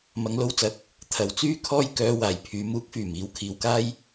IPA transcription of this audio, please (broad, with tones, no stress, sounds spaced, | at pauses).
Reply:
m ɐ˨˧ ŋ l o˧ w t͡s ɐ˨˥ k̚ | t̪ʰ ɐ˨ w t͡s yː˥ kʰ ɔː˥ j k œː˧ w aː˨ j pʰ yː˨˧ m uː˨˥ k̚ f yː˨˩ m iː˨˥ w kʰ iː˨˧ w k aː˥ j